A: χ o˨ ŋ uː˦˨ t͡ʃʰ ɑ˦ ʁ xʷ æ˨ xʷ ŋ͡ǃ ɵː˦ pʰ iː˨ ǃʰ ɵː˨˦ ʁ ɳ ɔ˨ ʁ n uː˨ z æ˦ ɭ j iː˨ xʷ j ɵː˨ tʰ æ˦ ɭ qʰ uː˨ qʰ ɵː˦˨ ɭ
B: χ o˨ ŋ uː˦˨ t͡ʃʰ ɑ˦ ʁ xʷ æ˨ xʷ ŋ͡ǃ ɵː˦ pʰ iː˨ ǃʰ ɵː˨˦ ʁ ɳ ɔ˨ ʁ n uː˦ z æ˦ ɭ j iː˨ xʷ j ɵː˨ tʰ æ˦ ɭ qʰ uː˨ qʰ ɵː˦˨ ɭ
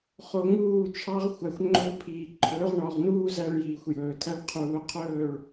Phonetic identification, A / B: B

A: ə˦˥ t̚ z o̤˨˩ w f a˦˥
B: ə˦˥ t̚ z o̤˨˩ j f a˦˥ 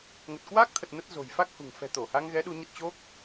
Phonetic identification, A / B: B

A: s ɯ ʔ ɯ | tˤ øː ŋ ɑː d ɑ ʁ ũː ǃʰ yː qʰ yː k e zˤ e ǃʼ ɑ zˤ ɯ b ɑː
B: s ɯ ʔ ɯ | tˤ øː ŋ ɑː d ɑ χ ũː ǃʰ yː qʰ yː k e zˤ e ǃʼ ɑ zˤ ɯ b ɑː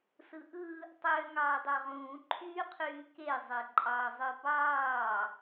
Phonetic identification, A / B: A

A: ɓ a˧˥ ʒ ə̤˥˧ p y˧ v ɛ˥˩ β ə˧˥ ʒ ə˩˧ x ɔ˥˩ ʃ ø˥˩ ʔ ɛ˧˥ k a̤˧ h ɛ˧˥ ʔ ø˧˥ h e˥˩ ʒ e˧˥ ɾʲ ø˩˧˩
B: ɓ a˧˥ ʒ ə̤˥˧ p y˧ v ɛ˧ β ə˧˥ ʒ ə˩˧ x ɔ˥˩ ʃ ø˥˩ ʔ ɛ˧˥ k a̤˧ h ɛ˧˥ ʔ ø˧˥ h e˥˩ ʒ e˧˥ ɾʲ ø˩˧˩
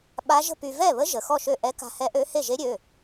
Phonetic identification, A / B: A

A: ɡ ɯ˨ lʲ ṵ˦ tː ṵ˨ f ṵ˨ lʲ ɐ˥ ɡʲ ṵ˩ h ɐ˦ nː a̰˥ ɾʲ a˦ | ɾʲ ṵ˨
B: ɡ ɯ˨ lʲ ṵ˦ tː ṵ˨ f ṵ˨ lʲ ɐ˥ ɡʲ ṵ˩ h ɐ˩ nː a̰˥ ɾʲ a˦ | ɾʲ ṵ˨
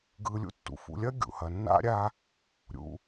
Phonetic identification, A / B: B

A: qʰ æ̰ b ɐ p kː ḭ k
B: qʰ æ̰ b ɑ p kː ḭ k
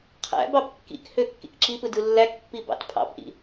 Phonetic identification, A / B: B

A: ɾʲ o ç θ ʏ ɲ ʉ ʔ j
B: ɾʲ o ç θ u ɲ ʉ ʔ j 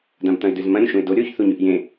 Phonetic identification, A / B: B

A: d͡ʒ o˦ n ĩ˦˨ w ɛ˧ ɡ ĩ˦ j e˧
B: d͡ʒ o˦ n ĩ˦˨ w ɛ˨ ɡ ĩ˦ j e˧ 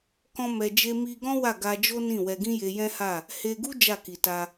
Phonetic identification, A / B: A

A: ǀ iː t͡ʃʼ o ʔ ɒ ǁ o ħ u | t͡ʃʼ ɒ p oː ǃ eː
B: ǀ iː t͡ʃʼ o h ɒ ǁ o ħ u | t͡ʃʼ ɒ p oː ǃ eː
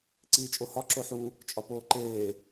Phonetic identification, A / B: B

